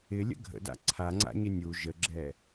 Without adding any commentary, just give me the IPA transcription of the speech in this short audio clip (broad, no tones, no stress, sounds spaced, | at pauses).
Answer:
ɪ lʲ ə̰ ɡʱ ə̰ d a̰ ǀʰ a ŋ͡ǀ a̰ ɲ ɪ nʲ u ʒ ə ɡ͡ǁ ɛ